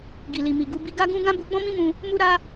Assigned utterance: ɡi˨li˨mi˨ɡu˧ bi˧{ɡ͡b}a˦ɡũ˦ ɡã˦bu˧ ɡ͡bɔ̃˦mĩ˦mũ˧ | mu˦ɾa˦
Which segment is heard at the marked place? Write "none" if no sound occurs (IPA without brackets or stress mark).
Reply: ɡ